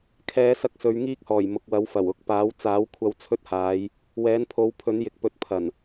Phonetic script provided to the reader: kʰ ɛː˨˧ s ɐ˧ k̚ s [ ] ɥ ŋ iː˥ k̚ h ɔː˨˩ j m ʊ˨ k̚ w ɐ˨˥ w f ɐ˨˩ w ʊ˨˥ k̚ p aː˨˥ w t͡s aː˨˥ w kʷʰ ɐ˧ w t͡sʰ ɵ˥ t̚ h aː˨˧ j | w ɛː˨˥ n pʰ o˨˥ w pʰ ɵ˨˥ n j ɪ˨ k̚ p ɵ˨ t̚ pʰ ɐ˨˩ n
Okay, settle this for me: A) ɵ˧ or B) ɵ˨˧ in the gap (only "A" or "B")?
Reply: B